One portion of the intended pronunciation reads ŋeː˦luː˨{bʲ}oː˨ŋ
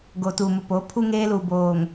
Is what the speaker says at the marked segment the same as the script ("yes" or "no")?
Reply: no